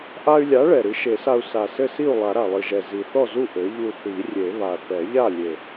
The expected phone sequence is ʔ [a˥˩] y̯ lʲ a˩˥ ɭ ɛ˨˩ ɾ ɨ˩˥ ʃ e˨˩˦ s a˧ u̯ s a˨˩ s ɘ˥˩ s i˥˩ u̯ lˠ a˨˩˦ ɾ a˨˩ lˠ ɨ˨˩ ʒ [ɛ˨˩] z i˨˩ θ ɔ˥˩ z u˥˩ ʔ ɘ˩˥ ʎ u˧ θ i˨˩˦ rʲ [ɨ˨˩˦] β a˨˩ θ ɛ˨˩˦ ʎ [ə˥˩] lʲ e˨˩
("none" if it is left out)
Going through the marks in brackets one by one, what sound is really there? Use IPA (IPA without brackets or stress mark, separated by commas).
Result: a˧, ɛ˨˩, e˨˩˦, a˥˩